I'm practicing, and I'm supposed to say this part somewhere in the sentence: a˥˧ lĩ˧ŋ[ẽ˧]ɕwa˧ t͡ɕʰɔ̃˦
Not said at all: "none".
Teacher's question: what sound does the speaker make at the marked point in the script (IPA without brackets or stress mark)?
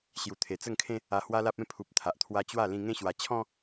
ẽ˦